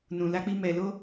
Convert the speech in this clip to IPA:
n ũ˨ l a˧ k͡p i˧ m ɛ˨ l o˧

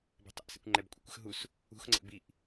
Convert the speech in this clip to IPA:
b ɛ̤ tˤ ɛ̰ ʔ s ɛ̰ kʷ ŋ͡ǃ ɛ b kʷʼ ə̰ kʷ ə̤ x ɦ u s | ṳ x ŋ͡ǀ ə̰ b i ʔ

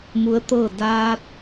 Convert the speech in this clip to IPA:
m u˧˥ ə̯ t̪ ɤː˥˨ d aː˧ t̚

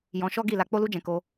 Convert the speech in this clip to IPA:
j ɔ̃˧ ʃ ɔ˦ ɡ i˦˨ l a˧ k͡p o˦ l u˦ d͡ʒ ɛ̃˧ k o˧

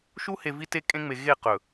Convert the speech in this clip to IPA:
ʃ u˦ h e˨ v i˦ t e˦ kʼ ẽ˦ ŋ͡m e˨ ɣ e˦˨ q ɵ˨

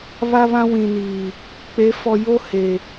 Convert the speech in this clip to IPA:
β a˦ β ã˦ w ĩ˨ n iː˨ | k͡p e˨˦ f ɔ˨ j o˦ h e˨

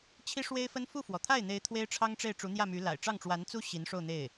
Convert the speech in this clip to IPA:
t͡ɕʰ i˥ ʂ w e˥ ɪ̯ f ə˥ n f u˥˩ f w ɔ˩ t̪ʰ a˥˩ ɪ̯ n̪ e˧˥ ɪ̯ t̪ʰ w e˥ ɪ̯ ʈ͡ʂʰ ɑ˥ ŋ ʈ͡ʂ e˥˩ ɪ̯ ʈ͡ʂ u˧˥ n̪ j ä˥˩ m y˧˥ l a̰˨˩ ɪ̯ ʈ͡ʂ ɑ˥˩ ŋ ʈ͡ʂ w a˧˥ n t͡s u˥ ɕ i˧˥ n ʂ o˥˧ ʊ̯ n̪ e˥˩ ɪ̯

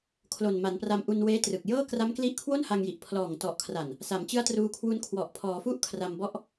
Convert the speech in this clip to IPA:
kʰ l o˨˩ n m a˩˦ n p r a˧ m ʔ u˧ n w eː˦˥ t r ɯ˨˩ k̚ j ɤː˥˩ k r a˦˥ m k l i˦˥ ʔ kʰ w o˥˩ n h a˧ ŋ j i˨˩ ʔ pʰ l ɔː˨˩ ŋ t ɔ˨˩ ʔ kʰ r a˨˩ n | s a˩˦ m t͡ɕ ɯ˦˥ a̯ t r uː˧ kʰ w u˦˥ n kʰ w ɔ˨˩ ʔ pʰ ɔː˩˦ f u˥˩ ʔ kʰ r a˧ m b ɔ˦˥ ʔ

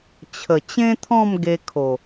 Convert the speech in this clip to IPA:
t͡ɕʰ ə˨˩ t͡ɕ ẽ˦ t̪ʰ ɔ̃˥˧ m ɡ e˧ kʰ o˨˩

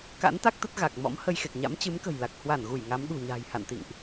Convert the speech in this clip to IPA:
k a̰˧˥ n t̪ a˦˥ k̚ t̪ ə˦˥ t̚ ɣ a˨˩ k̚ m ɔ̰˧˥ m h ə˧ j x e˨˩ k̚ ɲ a̰˧˥ m t͡ɕ ɨ˨˦ m k ə̤˨˩ j l a˨˩ k̚ h w a˧˩ n ɣ u˧˩ j ŋ a˨˦ m ɗ ṳ˨˩ ɲ a̤ː˨˩ j h a̰˧˨ n t̪ ḭ˧˨ ŋ ʔ

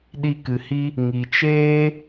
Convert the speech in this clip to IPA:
ɗ i˧ k ɨ˨ h i˧ | ŋ i˨ t͡ʃ eː˦

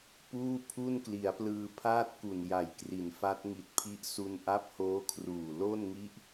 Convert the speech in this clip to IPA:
p uː˥˩ pʰ u˥˩ n k l i˩˦ a̯ p l ɯː˧ pʰ aː˥˩ t̚ k u˨˩ n j a˨˩ j k r i˩˦ n f a˦˥ t̚ ŋ i˨˩ t̚ pʰ i˦˥ ʔ s u˧ n ʔ a˦˥ p̚ h oː˦˥ kʰ r uː˨˩ l o˥˩ n ŋ i˦˥ ʔ

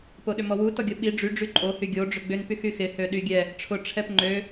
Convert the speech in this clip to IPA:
p o ɗ ʏ m ɔ w u t ɔ ɡʲ o ɓ i ɖ͡ʐ y ɖ͡ʐ y ǃʼ o h y ɡʲ o ɖ͡ʐ ʏ ɡ͡b ʏ n p y x y x ɪ h ø ɗ y ɡʲ ɛ | ʈ͡ʂʰ ʊ ʈ͡ʂʰ ɛ p ŋ͡ǃ ø

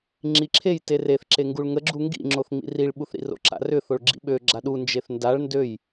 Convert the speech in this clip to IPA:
ŋ͡ǁ i ǁʰ e j t e r e θ ǁ e ŋ ɡ u ɭ ŋ ə ɡ͡ǁ u ŋ ɡ ḭ ŋ͡ǁ o θ ŋ͡m ḭ r i ɭ ɓ u θ ɾ ḭ r o̰ ǁ a̰ r ʏ θ o ɭ ɡ͡ǁ ḭ ɓ ø ɡ͡ǁ a ɗ u n d͡ʒ e θ n d a ɭ n d ø j

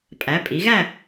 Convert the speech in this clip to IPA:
pʼ æ˩˧ pʼ i˩˧ ɣ æ˦˨

